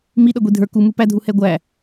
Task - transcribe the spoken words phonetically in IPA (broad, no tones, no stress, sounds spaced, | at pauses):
m i ɗ ʌ ɡʷ i dʱ ə˞ k u m u p æ dʱ u h ɛ ɡʷ æ